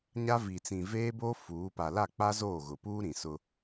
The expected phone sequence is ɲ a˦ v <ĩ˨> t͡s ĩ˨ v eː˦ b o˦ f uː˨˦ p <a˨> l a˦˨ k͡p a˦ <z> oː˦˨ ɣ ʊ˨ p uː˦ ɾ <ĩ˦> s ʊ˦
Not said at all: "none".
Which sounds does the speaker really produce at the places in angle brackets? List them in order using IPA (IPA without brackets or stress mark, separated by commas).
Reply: i˨, a˨, z, ĩ˨